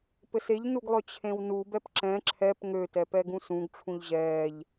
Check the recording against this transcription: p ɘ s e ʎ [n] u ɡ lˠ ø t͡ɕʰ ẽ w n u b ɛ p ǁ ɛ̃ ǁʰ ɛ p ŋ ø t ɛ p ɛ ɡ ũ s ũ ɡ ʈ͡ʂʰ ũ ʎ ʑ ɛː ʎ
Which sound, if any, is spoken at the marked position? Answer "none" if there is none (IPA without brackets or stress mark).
n